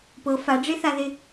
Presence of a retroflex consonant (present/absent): present